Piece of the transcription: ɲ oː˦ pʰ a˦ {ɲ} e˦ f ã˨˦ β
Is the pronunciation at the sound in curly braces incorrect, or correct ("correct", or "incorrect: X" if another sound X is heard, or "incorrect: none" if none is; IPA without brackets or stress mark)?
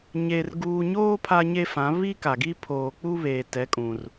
correct